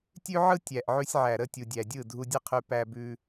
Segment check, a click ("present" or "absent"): absent